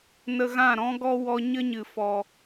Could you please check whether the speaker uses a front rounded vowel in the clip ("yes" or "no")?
no